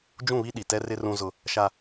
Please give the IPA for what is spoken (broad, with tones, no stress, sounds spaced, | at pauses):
d͡ʒ ũ˦˨ β i˦ ɗ i˨ t ɛ˦ r ɪ˦ r ũ˦ z ʊ˦ | ʃ a˦